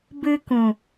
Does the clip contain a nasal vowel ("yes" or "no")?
yes